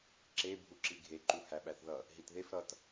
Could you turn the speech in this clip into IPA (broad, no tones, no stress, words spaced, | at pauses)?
ǁe bʱuǁiɡʱe ǃuhæɓæθðʌ | ɦitðef ɾʌt